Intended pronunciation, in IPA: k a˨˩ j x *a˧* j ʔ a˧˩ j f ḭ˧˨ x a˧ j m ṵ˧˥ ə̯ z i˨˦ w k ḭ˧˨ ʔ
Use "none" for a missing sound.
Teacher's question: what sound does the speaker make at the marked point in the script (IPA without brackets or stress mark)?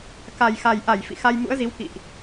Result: a˨˩